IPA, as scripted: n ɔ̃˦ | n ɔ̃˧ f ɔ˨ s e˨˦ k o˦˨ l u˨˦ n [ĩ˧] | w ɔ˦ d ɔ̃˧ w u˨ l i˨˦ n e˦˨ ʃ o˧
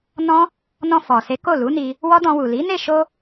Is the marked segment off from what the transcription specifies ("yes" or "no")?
yes